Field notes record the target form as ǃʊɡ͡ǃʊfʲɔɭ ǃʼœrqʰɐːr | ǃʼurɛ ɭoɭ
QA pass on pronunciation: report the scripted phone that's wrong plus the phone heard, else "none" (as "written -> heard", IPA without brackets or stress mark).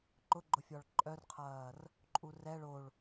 none